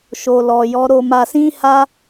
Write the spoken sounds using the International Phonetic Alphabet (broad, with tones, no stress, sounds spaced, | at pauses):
ʃ o˨ l ɔ˨ j ɔ˨˦ ɾ o˧ m a˧ s ĩ˦ h a˦